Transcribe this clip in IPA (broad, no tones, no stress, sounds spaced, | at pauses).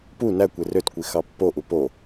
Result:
p u n æ kʷ e r ø t kʷ i x ɑ pː o ʔ u p o